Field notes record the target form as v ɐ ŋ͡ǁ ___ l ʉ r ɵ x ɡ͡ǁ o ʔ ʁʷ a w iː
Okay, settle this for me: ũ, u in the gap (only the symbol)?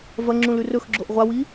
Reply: ũ